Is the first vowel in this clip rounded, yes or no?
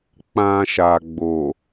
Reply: no